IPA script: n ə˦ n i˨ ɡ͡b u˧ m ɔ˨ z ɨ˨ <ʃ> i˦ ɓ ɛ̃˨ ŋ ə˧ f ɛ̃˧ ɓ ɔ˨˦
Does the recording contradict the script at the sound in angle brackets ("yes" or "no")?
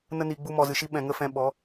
no